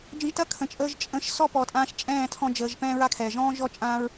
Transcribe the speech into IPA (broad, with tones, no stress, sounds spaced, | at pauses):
d͡ʒ ə̃˧ ʒ t ɐ˦ kʰ ə̃˨ t͡ʃʼ əː˧ ʒ t͡ʃʼ ə̃˧ ʃ s ɔ˦ p ɔ˨ tʼ ãː˧ ʃ t͡ʃʼ ɛ̃ː˦˨ tʰ ɔ̃˧ d͡ʒ əː˨ ʒ p ɛ̃ː˦ ɹ a˦ kʰ ɛː˨ ʒ ɔ̃ː˦ ʒ ɔ˦ t͡ʃʼ ãː˦ ɹ